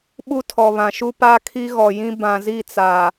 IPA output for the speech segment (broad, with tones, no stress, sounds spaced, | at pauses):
ɓ u˦ tʰ ɔ˨ β ã˨ ʃ u˦ p a˦ kʰ i˦ ɣ ɔ˨ j ĩ˦ b ã˨ z i˦˨ t͡s a˨